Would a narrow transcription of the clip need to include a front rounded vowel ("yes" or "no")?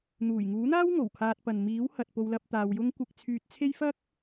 yes